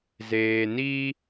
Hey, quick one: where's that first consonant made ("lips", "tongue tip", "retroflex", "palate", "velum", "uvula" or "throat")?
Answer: tongue tip